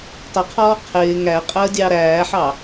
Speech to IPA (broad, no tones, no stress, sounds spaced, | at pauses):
tˤ ə qʰ ɔː qʰ ɪː ŋ æ qʼ əː dʲ ɑ ɾ æː ħ ɑ